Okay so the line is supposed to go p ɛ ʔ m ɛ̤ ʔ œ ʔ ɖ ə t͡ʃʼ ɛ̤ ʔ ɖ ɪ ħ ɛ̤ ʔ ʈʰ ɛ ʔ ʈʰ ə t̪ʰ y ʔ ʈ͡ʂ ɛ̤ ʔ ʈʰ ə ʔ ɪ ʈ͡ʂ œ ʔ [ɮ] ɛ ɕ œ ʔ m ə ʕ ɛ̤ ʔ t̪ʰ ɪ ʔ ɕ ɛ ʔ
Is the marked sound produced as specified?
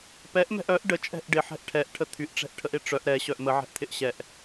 no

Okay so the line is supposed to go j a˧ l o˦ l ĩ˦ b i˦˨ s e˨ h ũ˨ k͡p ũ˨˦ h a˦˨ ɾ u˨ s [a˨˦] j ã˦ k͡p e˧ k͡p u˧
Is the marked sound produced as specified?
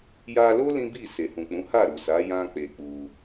yes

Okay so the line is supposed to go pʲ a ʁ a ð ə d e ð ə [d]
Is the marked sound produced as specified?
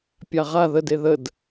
yes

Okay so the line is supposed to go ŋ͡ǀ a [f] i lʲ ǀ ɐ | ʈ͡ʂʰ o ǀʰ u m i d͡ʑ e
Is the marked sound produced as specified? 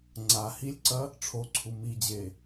no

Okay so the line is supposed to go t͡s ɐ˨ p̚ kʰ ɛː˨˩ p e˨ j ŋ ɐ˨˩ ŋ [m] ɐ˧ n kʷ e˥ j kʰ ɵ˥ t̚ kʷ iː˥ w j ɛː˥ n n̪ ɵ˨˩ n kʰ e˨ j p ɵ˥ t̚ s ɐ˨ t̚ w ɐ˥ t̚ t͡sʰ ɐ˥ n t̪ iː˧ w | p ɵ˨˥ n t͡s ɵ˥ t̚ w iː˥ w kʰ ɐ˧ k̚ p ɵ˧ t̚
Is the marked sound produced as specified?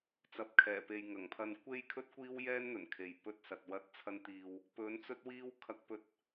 no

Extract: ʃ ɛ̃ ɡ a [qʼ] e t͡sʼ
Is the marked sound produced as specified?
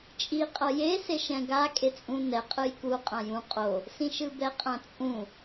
no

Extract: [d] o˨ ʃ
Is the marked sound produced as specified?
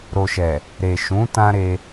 no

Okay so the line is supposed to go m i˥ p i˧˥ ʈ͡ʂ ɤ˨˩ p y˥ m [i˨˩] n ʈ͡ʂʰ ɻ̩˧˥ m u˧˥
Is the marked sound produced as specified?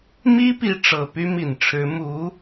yes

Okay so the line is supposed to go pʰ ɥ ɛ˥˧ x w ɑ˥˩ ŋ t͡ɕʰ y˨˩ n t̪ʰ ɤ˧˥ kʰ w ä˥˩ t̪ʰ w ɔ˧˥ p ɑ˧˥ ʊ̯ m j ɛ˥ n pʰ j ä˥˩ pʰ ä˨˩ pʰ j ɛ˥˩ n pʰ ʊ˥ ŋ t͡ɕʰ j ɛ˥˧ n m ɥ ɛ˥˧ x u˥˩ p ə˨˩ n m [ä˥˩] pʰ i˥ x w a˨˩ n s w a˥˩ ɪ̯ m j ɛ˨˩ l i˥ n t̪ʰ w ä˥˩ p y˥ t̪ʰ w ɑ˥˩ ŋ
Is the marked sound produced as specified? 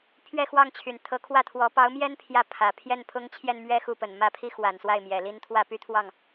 no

